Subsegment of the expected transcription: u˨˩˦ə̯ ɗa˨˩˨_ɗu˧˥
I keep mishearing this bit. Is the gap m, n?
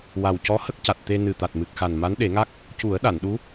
n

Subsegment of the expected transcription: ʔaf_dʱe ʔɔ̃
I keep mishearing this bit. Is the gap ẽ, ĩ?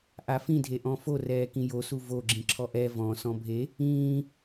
ĩ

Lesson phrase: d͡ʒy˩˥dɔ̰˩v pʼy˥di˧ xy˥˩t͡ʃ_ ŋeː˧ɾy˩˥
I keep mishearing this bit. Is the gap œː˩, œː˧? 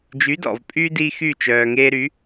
œː˩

